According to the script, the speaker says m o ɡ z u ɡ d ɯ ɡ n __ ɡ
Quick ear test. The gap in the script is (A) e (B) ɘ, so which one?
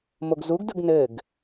B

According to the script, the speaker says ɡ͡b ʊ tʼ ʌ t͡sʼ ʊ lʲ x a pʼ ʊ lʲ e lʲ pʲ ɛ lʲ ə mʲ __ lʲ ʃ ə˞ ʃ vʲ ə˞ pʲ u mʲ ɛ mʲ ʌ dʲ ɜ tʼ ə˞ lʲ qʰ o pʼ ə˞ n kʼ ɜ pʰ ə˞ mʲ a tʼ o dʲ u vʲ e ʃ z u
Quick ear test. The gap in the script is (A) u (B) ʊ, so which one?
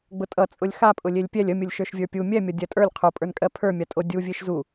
B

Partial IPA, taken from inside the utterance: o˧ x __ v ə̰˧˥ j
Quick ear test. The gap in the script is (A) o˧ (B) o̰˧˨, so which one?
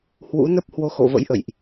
B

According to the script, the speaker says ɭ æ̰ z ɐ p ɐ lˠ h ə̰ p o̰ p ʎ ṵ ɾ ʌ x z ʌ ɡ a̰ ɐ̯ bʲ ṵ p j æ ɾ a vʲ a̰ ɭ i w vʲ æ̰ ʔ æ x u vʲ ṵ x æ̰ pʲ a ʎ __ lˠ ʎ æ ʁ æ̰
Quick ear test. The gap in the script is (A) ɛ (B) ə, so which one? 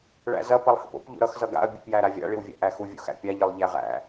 B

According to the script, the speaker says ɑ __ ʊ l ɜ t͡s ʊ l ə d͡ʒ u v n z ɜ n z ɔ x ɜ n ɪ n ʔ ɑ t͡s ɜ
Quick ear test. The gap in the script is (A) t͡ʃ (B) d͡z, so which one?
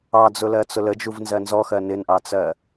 B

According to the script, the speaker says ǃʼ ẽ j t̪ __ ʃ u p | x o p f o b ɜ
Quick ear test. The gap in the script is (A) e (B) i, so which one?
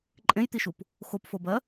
B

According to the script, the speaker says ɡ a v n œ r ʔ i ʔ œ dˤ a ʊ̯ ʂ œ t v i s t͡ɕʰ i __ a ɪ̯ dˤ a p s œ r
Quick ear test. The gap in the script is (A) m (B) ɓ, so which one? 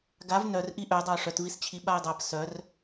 B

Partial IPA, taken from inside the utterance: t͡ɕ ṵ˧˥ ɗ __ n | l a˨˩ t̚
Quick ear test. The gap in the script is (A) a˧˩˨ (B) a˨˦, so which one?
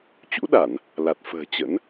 A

